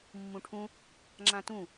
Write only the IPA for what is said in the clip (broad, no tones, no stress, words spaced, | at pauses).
mːũʈʰũ | ŋ͡ǁãtũ